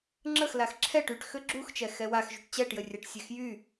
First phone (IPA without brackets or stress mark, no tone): ŋ͡ǁ